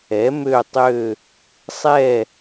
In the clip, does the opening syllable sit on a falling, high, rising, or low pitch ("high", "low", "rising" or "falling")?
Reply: rising